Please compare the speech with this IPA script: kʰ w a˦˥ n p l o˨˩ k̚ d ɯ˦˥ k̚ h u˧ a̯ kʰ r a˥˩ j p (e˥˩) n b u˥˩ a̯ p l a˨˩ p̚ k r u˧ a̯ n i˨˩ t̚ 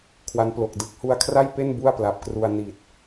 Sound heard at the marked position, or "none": e˥˩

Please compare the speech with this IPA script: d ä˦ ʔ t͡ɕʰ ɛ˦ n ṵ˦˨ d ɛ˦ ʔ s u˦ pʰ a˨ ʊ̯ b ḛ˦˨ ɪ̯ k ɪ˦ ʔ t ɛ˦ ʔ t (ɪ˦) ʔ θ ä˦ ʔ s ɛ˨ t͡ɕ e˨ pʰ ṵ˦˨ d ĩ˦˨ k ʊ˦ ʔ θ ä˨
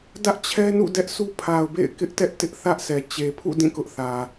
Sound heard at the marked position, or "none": ɪ˦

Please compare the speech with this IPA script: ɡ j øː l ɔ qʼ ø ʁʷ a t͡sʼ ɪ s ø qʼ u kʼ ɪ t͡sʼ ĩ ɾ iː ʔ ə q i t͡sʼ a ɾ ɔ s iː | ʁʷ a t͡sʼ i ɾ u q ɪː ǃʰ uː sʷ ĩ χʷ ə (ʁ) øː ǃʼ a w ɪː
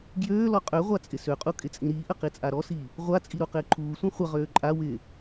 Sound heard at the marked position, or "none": ʁ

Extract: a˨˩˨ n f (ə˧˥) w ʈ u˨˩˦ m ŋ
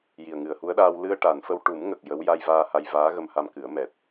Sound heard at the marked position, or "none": ə˧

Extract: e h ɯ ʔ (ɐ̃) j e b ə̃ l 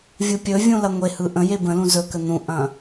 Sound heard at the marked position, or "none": ə̃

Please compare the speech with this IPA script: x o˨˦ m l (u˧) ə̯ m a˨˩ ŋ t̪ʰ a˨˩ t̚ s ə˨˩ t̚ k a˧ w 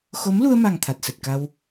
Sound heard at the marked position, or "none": u˧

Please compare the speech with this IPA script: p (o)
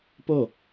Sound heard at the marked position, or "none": o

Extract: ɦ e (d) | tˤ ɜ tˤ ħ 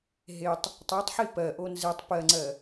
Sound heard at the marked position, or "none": tˤ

